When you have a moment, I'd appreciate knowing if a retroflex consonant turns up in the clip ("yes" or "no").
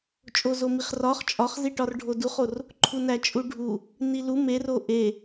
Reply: yes